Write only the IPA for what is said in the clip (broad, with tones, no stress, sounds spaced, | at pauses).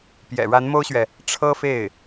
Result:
p j ɛ̰˨˩ ɻ a˧˥ n m o˥ ʊ̯ ɕ ɥ ɛ˨ | ʈ͡ʂʰ ɤ˥ f e˥˩ ɪ̯